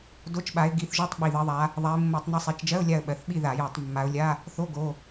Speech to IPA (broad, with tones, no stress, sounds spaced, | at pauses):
d o˧˥˧ t͡ʃ ɓ a˨˦ ɪ̯ ɡ i˨˦ θ ʒ o˧˥˧ tˤ ɓ i˩˧˩ ð ɜ˨˦ ðˤ a˨˦ | ðˤ a˨˦ ɪ̯ mː o˧˩˧ tˤ n i˨˦ sˤ i˩˧˩ t͡ʃ d͡ʒ ɜ˧˥˧ ʊ̯ lʲ a˦˨ ə̯ ɓ ɜ˩˧˩ θ ɓ i˦˨ ð a˧˩˧ j a˧˩˧ tˤ mː a˨˦ ʊ̯ lʲ a˧˥˧ | θ o˧˥˧ ɡ o˩˧˩